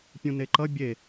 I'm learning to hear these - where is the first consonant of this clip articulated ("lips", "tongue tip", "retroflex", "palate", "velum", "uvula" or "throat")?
lips